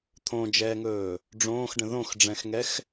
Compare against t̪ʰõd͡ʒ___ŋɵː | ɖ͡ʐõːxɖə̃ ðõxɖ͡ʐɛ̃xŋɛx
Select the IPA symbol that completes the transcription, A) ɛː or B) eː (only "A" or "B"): A